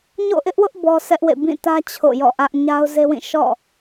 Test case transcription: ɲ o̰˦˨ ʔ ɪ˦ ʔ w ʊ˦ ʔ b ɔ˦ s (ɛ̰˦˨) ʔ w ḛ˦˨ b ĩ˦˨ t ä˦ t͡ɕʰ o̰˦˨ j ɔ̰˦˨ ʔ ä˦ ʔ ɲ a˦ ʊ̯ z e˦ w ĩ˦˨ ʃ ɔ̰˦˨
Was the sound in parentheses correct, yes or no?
no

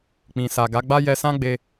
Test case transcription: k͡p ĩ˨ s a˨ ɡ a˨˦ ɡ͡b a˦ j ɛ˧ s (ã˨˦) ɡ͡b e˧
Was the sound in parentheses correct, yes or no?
no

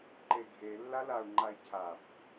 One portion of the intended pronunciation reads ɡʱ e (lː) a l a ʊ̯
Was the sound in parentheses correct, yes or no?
yes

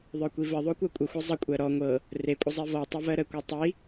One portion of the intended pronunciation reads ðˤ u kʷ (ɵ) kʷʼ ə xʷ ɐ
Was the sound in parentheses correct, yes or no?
no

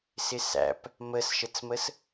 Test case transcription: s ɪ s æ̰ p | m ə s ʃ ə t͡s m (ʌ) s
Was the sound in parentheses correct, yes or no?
no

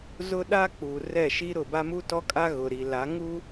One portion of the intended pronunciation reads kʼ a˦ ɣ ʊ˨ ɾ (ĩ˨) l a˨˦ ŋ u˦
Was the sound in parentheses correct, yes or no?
no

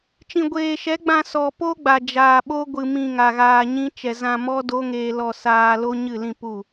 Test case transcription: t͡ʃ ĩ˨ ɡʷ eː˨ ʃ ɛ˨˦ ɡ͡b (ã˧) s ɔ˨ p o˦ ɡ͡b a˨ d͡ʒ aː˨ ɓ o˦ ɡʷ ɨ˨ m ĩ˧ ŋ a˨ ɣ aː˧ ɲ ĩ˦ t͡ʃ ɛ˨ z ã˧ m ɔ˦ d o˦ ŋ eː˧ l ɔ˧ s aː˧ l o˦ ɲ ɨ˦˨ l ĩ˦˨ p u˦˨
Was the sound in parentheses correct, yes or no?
yes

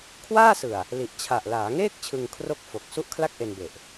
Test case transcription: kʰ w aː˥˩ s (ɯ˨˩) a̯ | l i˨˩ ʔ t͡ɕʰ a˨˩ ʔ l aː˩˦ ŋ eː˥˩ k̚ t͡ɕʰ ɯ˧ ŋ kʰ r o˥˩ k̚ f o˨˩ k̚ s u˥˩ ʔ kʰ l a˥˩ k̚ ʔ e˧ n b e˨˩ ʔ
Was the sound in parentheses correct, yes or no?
yes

